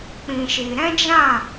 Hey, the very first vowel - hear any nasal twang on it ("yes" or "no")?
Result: yes